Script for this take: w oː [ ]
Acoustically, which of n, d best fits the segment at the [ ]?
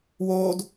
d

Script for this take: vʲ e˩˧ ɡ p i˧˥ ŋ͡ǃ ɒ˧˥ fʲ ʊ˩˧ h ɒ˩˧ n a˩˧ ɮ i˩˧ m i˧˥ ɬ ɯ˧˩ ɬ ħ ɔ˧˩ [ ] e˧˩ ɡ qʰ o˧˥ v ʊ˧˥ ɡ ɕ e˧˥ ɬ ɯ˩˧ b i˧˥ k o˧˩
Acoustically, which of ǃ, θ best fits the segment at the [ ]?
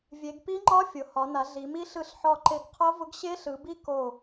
ǃ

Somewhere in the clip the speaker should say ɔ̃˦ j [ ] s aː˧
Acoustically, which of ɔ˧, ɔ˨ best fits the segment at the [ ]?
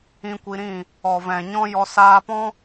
ɔ˧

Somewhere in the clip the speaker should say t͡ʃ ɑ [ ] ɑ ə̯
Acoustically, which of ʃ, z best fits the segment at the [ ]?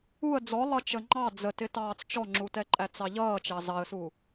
z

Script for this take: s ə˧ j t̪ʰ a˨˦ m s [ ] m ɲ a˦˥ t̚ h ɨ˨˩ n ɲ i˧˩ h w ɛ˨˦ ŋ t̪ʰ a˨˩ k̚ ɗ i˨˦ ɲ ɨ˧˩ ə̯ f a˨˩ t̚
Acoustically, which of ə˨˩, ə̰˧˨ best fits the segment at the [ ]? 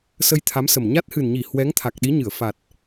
ə˨˩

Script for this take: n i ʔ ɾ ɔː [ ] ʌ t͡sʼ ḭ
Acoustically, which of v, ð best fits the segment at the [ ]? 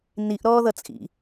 ð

